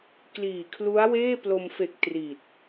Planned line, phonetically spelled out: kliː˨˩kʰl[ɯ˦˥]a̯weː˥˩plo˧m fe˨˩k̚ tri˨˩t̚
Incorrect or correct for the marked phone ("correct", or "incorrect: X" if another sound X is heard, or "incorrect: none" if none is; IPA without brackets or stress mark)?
incorrect: u˦˥